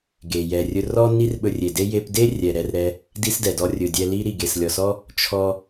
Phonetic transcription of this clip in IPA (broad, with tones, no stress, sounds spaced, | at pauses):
ɡ e˨ j ɛ˨ rʲ ɵ˧ r ɔ˦ n i˦ r ɓ ɵ˧ rʲ e˨ d e˦ j e˧ p d e˦ rʲ ɛ˨ ɾ ɛ˧ r ɾ ɛ˧ | d i˦ s d ɛ˨ d ɔ˦ rʲ ɵ˨ dʲ ɛ˧ l i˦ ɾ i˨ ɡ e˨ s lʲ ɔ˨ s ɔ˦ | t͡ʃʰ ɔ˧